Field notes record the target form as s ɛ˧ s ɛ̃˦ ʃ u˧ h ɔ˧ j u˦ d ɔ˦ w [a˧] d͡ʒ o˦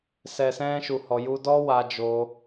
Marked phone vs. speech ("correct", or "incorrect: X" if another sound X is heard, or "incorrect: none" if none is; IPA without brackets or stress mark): correct